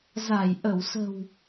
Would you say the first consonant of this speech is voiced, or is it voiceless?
voiced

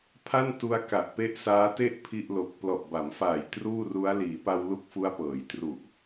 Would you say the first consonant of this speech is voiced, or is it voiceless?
voiceless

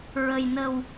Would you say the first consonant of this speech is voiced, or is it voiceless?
voiced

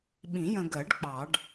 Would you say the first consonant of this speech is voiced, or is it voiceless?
voiced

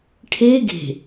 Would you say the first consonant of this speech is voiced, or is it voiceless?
voiceless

